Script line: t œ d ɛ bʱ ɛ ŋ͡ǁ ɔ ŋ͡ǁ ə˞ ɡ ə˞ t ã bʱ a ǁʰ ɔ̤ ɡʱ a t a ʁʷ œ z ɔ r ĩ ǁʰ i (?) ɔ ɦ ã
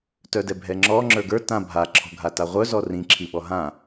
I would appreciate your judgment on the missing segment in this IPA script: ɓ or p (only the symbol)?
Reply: ɓ